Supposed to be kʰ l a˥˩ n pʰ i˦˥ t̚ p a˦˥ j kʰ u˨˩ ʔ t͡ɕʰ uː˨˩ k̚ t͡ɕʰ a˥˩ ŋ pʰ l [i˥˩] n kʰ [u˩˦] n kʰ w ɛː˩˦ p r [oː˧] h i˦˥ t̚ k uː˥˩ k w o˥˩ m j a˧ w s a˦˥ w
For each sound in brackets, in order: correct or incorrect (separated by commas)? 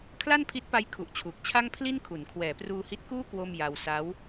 correct, correct, incorrect